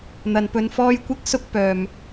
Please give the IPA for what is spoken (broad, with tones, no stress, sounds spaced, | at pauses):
n̪ ɐ˨˩ n p ɵ˨ n f ɔː˧ j kʷ ɪ˧ k̚ s ʊ˧ k̚ p œː˨˩ m